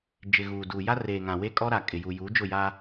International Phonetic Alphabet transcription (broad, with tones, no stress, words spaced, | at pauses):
d͡ʒɪ˨ɣuː˨duː˨ ja˦reː˨ŋã˨we˦ kʼɔ˦ɾa˨ kʼɪ˨ju˨ juː˨˦d͡ʒʊ˦˨ja˦